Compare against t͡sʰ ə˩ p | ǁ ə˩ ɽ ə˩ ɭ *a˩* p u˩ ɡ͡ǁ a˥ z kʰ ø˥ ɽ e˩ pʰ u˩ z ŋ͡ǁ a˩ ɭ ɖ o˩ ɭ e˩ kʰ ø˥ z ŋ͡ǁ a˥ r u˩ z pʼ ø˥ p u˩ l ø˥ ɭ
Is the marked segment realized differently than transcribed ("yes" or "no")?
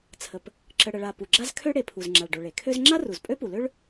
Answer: no